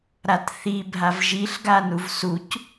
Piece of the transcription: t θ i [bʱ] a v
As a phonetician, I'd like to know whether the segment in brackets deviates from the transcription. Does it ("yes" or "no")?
no